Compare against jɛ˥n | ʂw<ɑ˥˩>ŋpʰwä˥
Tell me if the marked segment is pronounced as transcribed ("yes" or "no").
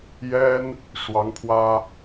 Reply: no